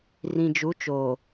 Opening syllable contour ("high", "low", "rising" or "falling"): low